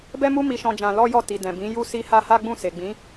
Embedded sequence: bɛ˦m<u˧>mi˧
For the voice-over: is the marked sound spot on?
no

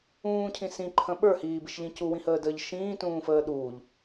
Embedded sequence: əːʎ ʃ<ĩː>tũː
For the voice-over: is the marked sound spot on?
yes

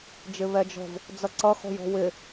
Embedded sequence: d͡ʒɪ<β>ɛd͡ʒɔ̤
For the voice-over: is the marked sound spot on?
yes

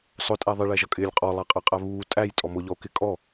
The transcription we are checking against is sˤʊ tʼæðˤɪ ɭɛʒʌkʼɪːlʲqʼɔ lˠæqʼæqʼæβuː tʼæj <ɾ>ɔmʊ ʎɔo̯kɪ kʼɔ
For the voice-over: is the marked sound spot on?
no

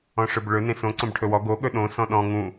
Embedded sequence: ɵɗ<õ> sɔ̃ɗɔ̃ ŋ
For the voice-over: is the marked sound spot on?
yes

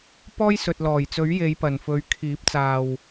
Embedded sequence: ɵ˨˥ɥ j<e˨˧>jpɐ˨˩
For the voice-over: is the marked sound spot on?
yes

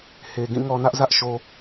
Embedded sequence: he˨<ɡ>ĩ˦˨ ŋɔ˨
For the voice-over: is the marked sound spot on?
yes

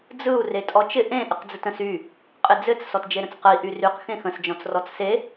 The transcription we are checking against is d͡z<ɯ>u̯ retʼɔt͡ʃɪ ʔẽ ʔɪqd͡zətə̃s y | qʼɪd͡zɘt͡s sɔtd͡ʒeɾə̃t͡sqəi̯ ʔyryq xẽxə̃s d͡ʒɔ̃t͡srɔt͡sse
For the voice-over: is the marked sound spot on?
yes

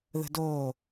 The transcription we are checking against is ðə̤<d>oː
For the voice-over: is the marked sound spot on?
yes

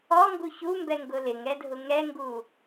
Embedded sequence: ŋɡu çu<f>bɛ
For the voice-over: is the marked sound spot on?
no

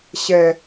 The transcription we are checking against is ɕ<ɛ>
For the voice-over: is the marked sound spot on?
yes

